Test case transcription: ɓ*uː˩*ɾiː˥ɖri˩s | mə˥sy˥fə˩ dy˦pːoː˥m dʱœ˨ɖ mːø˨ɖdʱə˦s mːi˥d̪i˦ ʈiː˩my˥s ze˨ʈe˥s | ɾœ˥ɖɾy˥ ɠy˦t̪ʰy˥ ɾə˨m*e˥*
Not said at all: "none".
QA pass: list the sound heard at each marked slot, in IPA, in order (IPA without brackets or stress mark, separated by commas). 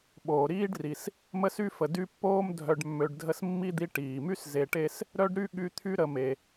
oː˩, e˩